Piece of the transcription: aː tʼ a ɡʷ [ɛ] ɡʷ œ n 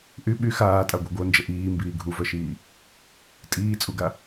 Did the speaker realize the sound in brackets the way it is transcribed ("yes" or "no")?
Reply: no